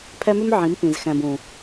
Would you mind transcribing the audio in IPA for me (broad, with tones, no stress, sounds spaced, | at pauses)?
pʰ ɛ˦ m ʉ˦ m ʕ ĩ˨˦ m p ĩ˨ z x ɛ̃˨ b ũ˨